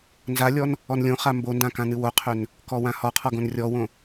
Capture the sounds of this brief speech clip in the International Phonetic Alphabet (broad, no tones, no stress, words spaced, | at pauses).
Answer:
nzalʲɔn | ɔnlʲõχa mbondã kãnɨwoqʰøn | kɔwãhɔqʰɔ ɡõnrʲɔwõ